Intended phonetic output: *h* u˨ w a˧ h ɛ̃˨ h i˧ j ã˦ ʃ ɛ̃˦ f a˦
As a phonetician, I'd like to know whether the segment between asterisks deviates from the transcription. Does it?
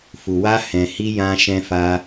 yes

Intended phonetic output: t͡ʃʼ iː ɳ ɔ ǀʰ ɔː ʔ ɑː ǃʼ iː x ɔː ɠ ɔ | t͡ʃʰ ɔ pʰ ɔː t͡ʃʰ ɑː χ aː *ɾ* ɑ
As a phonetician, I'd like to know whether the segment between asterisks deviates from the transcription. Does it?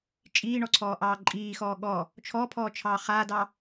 yes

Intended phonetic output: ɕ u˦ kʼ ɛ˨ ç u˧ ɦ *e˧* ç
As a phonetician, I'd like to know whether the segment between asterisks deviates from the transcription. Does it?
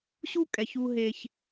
no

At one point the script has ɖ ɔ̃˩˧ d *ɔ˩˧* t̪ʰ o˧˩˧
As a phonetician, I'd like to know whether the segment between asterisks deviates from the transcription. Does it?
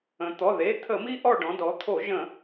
no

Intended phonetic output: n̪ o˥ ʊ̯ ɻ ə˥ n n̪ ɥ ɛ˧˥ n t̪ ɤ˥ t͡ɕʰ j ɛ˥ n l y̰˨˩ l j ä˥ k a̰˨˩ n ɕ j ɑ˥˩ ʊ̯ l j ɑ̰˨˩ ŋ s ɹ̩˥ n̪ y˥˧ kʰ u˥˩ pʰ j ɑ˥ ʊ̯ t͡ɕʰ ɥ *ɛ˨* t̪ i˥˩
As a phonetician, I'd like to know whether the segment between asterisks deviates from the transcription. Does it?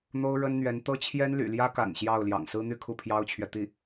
no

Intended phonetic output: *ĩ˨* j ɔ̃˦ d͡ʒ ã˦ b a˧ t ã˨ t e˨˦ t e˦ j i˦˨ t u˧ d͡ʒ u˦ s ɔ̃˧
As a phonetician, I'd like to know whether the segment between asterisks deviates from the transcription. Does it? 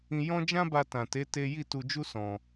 yes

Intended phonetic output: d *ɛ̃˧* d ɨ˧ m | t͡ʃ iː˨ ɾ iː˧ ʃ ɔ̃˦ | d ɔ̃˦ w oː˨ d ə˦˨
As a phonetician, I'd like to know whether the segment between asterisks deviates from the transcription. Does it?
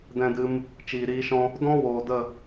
no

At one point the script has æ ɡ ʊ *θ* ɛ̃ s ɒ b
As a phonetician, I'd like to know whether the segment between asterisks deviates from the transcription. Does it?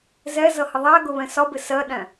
yes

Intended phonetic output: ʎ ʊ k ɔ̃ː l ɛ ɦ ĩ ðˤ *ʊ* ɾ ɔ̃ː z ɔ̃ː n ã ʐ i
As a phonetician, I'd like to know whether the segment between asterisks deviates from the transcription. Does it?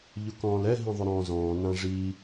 no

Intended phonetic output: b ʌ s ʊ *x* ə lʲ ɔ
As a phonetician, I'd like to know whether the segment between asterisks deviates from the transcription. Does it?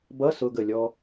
yes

